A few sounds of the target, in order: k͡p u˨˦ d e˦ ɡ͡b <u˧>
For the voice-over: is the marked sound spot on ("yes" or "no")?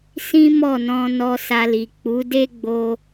no